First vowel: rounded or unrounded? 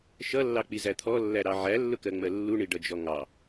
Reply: unrounded